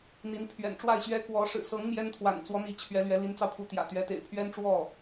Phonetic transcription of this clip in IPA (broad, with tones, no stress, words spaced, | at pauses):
n̪i˧˥n pʰɥɛ̰˨˩nʈ͡ʂwa˥˩ɪ̯ɕɥɛ˥ kwɔ˧˥ ʂɻ̩˨˩sɤ˧˥ŋ mjɛ˥nt̪ʰwa̰˨˩nt͡swɔ˧˥n̪i˧˥ t͡ɕʰɥɛ˧˥lɥɛ˧˥li˧˥nt͡sɑ˧ʊ̯ pʰu˧˥t̪jä̰˨˩t̪ɥɛ˧˥t̪ḛ˨˩ɪ̯ pʰɥɛ˥nʈ͡ʂwɔ˥˩